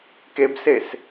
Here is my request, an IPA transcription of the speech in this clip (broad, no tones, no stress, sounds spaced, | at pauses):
k e b s e s